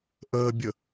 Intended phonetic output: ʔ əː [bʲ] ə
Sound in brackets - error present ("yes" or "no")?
no